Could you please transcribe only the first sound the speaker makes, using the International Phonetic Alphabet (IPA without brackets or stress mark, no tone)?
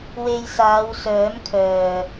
w